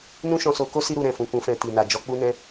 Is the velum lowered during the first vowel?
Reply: yes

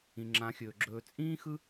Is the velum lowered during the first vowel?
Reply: yes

